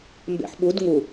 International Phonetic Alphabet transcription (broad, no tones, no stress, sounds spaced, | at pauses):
m b ḛ ħ ɓ u d ŋ u